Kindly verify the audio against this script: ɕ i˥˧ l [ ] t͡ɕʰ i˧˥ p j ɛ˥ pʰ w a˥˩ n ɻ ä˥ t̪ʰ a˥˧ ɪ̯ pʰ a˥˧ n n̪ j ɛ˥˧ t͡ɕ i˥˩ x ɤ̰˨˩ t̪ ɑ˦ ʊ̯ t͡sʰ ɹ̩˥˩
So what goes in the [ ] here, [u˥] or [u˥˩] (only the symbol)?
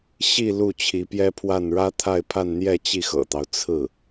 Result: u˥˩